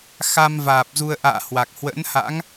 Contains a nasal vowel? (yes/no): no